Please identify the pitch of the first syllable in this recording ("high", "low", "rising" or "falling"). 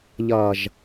low